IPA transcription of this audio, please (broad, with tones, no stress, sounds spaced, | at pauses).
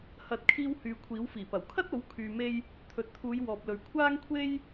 h ɐ˨˥ t̚ kʰ iː˧ w h yː˨ kʷʰ iː˨˥ w f iː˨˩ p ɐ˨˩ w kʰ ɐ˥ t̚ o˨˥ w kʰ yː˨ m e˧ j | t̪ʰ ɵ˨ t̚ t̪ʰ uː˨˧ j w ɔː˨ p̚ l ɵ˨ ɥ kʷʰ aː˥ ŋ kʷʰ e˥ j